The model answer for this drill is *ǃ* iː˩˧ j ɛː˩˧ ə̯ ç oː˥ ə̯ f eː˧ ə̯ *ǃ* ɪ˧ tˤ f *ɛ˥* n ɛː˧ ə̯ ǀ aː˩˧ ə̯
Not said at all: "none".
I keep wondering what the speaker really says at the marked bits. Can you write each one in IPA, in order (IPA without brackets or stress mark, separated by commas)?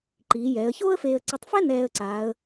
ǃ, ǀ, ɛ˥